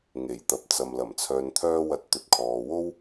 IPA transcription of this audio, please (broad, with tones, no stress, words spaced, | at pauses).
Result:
ŋe˨˩jt̪ɐ˨p̚t͡sɐ˨m lɐ˨˩mt͡sʰœː˨nt̪ʰœː˧ wɐ˨˥t̚t̪ɵ˨t̚kʰɔː˨wo˥w